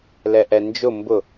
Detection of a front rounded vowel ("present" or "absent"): absent